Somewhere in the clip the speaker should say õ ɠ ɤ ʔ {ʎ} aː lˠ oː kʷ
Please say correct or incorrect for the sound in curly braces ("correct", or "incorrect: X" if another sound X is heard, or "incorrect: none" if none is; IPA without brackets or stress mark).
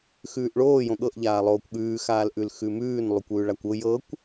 correct